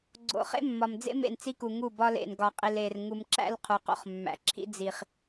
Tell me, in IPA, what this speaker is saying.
ɡ͡ǀo̰˨ χḛ˦mːɒ˨md͡zḛ˦ mḛ˦˨nt͡si˦ku˨ŋu˦˨ bɒ˦lḛ˨n ɡɒ˨qʼi˨le˨r ŋu˨mǁæ̰˦l qʰu˨qo̰˦χmːæ̰˨ǁʰḭ˦ d͡zi˨χ

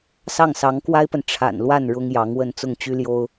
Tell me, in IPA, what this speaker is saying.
sɑ˥˩ŋsɑ˧˥ŋkwa˥ɪ̯pə˨n ʈ͡ʂʰa̰˨˩n lwa˥˩n ɻʊ˥ŋjɑ˧˥ŋwə˥˧n t͡sʊ˥˩ŋt͡ɕy˥ljo˥ʊ̯

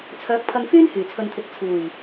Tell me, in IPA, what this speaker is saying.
t͡sʰœː˨˥k̚pʰɐ˧ŋ fyː˥nhyː˨˩t͡sʰɵ˨nt̪ʰɪ˨k̚ t͡sʰuː˨˩j

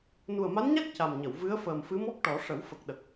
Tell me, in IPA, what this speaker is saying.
nu˨˩ə̯ma˧˥nɲa˦˥k̚ ca˨˩mɲə˨˩˨w vɨ˧˥ə̯ fəː˨˩mfɨ˧˥mɔ˦˥k̚ʈɔ˨˩˦ ʂə˨˩˦wfə˨˩k̚ɗə˨˩k̚

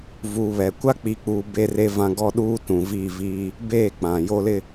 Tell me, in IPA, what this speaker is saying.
vuː˨βɛ˨˦ kʷa˦k͡piː˨k͡puː˨ be˦ re˦vã˦ ɡɔ˦ɗuː˦ tũ˨viː˦˨viː˦ | beː˦˨k͡pã˨ jo˦lɪ˦

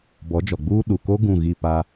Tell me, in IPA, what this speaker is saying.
bɔ˨˦d͡ʒɔ˨ɡ͡buː˦ ɗu˨ko˦ ɡũ˦˨ɣi˦˨pa˦

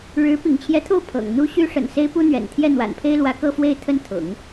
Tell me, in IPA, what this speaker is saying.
ɻɻ̩˧˥ pḭ˨˩ŋt͡ɕʰjɛ˧˥t̪ʰo˥˩ʊ̯ pʰɤ̰˨˩ŋ n̪u˥ ɕy˥ʂə̰˨˩n se˥ɪ̯pu˥n̪ɥɛ̰˨˩n t̪ʰjɛ˥˩n̪wa̰˨˩npʰe˥ɪ̯lwä˧˥ kɤ˥˧fwe˥˧ɪ̯t̪ʰə˥˩n t̪ʰʊ̰˨˩˦ŋ

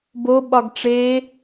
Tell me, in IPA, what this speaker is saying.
bo ɓɒɡʈ͡ʂe

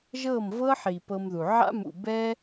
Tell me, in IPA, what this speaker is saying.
ʒɤ˦˨mvɤ˦ħi˨ pɤ˧mðu˨ ʕa̰˦mṵ˨bɛ˦

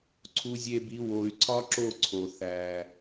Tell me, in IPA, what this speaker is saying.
ǀʰu˧zʲe˧bi˨˦ wo˨y̯ ǀʰɒ˦ǁo˦˨ ǀʰo˨ θæ˨

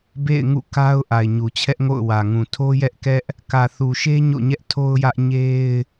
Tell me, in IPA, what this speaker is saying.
bḛ˦˨ɪ̯ŋṵ˦˨ka˦ʊ̯ ʔa˨ɪ̯ɲu˨t͡ɕʰɛ˦ʔŋo̰˦˨ʊ̯ wä˨ŋũ˨ tʰo˦jɛ˦ʔkɛ˦ʔ | kä˨θu˨ʃe˦ ɲo̰˦˨ɲɛ˦ʔtʰo˦ʊ̯jä˦ʔ ɲe˦ɪ̯

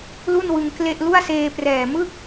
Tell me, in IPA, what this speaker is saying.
lu˥˩nwɯ˧ŋ kle˥˩ʔ lu˥˩a̯seː˧prɛː˨˩ mɯ˥˩k̚

